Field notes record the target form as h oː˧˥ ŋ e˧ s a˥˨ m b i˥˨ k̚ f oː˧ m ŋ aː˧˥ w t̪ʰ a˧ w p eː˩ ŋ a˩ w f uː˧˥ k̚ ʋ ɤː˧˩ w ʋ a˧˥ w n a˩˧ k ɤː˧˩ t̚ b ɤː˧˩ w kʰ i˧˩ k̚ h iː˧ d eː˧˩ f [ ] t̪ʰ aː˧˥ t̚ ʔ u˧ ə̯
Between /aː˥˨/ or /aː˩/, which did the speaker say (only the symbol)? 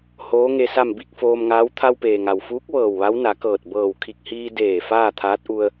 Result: aː˥˨